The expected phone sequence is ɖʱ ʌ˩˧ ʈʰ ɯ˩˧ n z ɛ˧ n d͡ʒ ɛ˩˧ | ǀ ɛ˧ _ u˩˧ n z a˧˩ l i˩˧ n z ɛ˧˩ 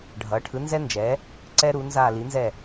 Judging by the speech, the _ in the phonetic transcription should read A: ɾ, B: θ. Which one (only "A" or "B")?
A